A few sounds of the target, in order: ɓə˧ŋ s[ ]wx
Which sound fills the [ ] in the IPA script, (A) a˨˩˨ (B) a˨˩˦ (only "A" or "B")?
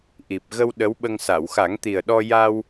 A